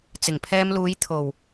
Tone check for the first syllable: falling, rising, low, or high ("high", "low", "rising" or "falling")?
low